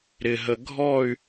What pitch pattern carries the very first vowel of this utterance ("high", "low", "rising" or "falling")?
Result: low